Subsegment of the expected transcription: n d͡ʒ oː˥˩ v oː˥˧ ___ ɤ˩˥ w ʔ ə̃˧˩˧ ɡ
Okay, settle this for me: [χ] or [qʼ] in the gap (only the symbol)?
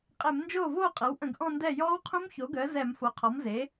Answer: qʼ